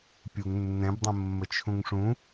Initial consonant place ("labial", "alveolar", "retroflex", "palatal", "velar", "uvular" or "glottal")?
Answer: labial